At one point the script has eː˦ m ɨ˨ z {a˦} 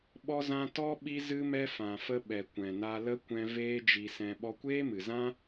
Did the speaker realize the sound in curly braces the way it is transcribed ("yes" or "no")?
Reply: no